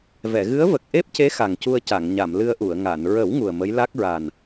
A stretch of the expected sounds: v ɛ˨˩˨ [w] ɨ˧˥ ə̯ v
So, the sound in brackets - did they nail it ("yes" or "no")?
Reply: no